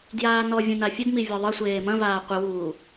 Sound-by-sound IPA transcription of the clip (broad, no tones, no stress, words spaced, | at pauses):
djaːnɔvʲɐ̃ nafʲɘdmi vʲɔðˤɘsʷeː mɐ̃vaː qʷɘwuː